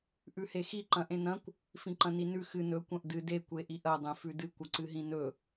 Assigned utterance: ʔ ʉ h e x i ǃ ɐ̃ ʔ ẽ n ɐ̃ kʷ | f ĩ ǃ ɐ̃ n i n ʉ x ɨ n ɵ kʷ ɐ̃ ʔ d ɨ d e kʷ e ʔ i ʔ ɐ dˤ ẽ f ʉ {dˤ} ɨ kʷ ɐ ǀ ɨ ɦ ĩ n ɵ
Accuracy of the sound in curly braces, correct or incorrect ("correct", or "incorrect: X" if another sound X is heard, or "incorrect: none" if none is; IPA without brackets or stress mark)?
incorrect: d